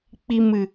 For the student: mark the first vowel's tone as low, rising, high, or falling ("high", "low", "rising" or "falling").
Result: low